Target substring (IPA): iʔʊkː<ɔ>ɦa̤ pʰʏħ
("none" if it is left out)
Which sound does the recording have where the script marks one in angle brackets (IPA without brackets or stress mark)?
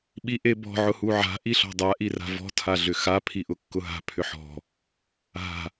ʊ